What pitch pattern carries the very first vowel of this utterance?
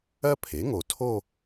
high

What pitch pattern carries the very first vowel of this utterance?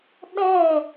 falling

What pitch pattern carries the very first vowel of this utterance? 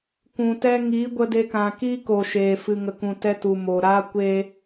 low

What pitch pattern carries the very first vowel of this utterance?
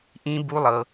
high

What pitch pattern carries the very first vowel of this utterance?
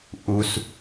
low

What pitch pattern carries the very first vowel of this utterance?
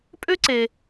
high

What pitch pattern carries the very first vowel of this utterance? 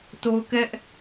high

